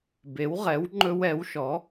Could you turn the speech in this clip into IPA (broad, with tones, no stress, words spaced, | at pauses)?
be˩˧wʁɛ˩˧w ŋ͡ǃɵ˧wɛ˩˧wʃɔ˩˧